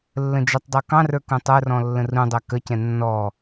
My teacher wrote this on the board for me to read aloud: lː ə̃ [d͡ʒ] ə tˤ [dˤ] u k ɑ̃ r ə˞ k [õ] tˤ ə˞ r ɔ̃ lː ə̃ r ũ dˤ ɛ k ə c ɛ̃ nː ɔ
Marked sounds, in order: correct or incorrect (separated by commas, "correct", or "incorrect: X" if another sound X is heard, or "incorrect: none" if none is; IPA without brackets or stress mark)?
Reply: correct, correct, incorrect: ũ